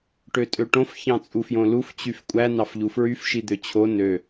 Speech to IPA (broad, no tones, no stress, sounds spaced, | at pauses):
ʈ ø tʼ ø ʈ õ f ç ɑ̃ t͡sʼ u f j õ l u f t͡ɕ y f kʷʼ æ n ɑ f ʎ u f ɹ y f ʃ i d̪ ø t͡ɕʰ o n ø